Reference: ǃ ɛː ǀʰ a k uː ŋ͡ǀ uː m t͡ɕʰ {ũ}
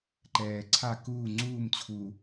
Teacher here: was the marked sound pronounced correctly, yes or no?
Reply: no